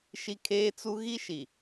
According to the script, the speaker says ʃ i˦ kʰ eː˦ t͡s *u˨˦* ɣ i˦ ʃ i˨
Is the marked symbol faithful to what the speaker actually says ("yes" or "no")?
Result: no